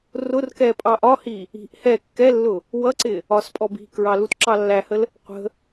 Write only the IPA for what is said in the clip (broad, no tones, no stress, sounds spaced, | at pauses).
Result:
r ʊ r k ɛ pʼ ɑ ʔ ɒ h i | i̤ ʔ h ɛ kː ɛ lː ʊ | w ʌ ǀ ɪ | ɒ s pʼ ɔ b i̤ k ɹ ɑ l u t ǁ ɑ lː æ h ə l | qʷ ə̤